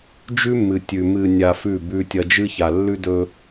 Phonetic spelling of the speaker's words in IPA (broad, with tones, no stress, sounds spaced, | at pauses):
d͡ʒ ʉ˦ mː ɨ˨ tʲ ʉ˨ m ɨ˨ nʲ a˨ f ʉ˦˨ b ʉ˦ tʲ ɐ˦ d͡ʒ ɨ˦ ç a˨ lː ʉ˦ d ɵ˦